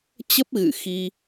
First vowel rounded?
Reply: no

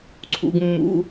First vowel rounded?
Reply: yes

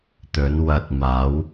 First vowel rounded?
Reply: yes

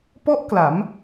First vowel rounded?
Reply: yes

